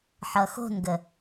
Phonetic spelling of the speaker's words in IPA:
ħʌxo̤nɡə

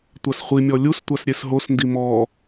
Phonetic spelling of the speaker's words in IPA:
tʷasχʷimʲɔ lʲustʷas ɾʲesɦosndi mɔ

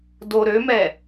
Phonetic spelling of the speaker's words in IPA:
do ɾømɛ

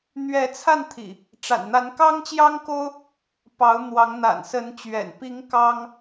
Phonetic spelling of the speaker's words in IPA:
n̪ɥɛ˨˦t͡sʰa˥˨nt̪ʰḭ˨˩ | ʈ͡ʂa̰˨˩nn̪a˨˦n kɑ˦ŋt͡ɕjɑ˦ŋko˦ʊ̯ | pɑ˨˦ʊ̯ n̪wɑ˨˦ŋn̪a̰˨˩nsə˨˦nt͡ɕɥɛ̰˨˩n pi˨˦ŋ kɑ˦ŋ

